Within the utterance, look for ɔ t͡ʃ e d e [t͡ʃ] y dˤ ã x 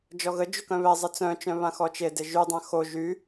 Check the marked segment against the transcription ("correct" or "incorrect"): incorrect